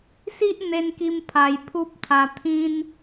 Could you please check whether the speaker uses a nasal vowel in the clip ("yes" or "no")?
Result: yes